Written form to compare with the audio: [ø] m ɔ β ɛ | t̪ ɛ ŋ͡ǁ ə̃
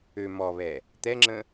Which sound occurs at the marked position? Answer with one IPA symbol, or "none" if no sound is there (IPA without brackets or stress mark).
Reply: ø